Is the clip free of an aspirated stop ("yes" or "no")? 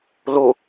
yes